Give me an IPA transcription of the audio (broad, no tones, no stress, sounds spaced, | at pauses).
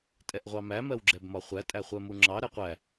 tʼ ɛ ʔ ʁʷ ɑ m æ m ɜ w ɡ͡ǁ ɛ b m ɒ χʷ æ tʼ æ χʷ ɜ m u ŋ͡ǁ ɑ ɾ ɛ qʷ æ